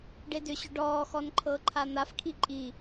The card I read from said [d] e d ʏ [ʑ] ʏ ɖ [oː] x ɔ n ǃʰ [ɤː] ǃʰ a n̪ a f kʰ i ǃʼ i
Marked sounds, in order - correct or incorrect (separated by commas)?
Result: incorrect, incorrect, incorrect, correct